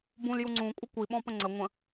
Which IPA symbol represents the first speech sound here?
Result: b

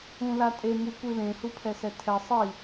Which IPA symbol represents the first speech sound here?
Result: ũ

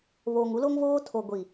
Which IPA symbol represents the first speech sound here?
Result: β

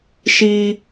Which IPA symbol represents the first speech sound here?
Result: ʃ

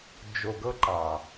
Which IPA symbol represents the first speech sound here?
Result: d͡ʒ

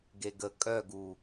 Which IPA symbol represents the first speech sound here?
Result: ɡ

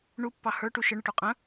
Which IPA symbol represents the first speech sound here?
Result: ɳ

